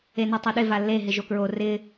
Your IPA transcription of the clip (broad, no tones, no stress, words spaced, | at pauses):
enetˤoɗɪ valːe ɦɪʒokɹo rɪ